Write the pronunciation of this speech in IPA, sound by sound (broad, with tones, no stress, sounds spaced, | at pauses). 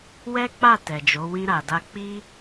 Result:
w ɛ˦ k͡p a˦˨ t ɛ˨ d͡ʒ o˨˦ w ĩ˧ ɾ a˨ d a˧ k͡p i˧